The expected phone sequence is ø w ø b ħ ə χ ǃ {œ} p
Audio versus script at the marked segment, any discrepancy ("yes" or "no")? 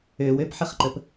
yes